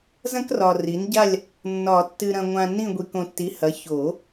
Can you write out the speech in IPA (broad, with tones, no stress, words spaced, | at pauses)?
zɐ̃˥krɒ˨ri˩˥n ɟa˦˨lʲ | nːɒ˨˩˦ tːɨ˨ɾɐ̃˨ ŋʷã˨ nĩ˦˨ ɡʷi˨kõ˨tːi˩˥hɐ˩˥ ço˨˩˦